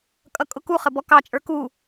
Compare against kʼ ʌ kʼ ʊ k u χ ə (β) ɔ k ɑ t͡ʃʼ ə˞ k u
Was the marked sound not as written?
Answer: yes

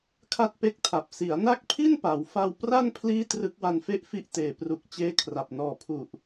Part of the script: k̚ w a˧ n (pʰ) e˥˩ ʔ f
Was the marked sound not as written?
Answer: yes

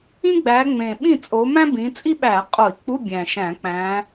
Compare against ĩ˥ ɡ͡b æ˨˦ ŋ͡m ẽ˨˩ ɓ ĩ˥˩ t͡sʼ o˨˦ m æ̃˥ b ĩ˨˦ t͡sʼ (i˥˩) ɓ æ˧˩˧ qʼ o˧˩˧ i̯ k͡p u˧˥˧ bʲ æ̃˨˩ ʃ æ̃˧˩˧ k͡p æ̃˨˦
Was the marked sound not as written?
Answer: yes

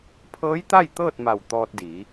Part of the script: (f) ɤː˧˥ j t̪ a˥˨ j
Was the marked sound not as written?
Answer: yes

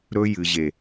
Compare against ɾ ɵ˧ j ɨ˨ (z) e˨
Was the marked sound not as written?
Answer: yes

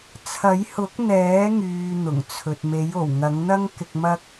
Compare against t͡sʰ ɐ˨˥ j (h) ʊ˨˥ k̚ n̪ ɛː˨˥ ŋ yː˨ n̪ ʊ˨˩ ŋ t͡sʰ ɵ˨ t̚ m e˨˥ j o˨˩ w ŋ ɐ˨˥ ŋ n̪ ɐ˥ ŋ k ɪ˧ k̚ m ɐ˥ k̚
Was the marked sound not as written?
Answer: no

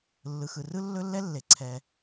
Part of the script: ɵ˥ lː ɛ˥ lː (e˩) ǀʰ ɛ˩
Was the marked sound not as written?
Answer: no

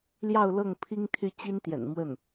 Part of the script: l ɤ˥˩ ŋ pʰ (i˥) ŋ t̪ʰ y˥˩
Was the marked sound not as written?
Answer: no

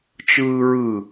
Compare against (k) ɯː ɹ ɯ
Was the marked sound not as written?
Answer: yes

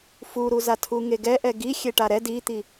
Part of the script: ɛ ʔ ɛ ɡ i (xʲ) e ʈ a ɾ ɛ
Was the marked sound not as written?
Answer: no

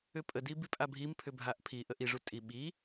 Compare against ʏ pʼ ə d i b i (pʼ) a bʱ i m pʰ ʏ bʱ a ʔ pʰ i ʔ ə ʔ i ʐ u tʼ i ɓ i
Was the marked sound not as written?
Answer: no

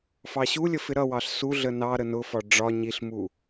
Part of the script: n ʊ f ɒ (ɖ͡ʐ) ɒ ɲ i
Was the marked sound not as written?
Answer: no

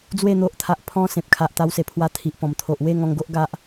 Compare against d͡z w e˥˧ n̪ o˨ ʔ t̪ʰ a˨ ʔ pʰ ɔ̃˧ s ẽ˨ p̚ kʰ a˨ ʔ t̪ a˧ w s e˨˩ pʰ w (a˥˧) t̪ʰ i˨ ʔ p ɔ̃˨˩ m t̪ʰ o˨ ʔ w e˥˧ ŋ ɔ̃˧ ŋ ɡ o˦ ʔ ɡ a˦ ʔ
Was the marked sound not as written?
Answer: yes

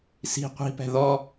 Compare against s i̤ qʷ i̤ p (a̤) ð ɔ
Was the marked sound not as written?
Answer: yes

